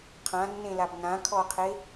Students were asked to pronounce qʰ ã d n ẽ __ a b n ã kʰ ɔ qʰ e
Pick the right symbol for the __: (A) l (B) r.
A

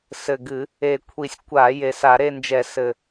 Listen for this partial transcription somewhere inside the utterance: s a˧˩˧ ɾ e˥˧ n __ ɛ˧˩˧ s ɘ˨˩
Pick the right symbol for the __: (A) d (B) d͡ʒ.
B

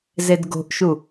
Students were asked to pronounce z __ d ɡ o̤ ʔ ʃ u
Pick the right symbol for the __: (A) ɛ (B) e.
B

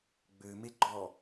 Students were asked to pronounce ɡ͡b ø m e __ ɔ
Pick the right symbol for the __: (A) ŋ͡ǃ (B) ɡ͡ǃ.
B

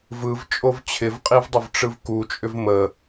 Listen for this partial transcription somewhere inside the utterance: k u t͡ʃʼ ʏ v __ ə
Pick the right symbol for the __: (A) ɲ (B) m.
B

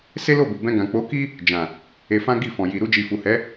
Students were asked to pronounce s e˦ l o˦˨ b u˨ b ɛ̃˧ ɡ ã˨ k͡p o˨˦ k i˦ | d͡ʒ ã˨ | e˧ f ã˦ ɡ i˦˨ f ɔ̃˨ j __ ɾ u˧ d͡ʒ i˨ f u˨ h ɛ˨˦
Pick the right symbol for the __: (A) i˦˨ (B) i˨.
B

